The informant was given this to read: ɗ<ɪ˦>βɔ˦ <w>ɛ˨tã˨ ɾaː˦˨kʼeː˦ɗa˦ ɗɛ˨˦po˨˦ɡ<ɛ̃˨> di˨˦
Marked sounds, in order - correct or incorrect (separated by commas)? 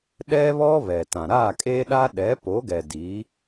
incorrect, incorrect, incorrect